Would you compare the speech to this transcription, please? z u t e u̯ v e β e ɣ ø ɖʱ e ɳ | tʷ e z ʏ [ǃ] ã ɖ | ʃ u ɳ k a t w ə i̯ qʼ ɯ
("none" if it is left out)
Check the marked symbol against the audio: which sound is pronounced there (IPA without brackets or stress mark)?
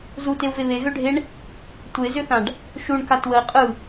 θ